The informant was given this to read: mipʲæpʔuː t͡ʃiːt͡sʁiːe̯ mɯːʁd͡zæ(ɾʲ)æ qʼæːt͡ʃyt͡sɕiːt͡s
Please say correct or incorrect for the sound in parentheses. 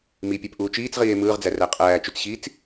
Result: incorrect